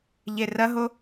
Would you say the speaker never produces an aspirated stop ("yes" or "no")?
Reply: yes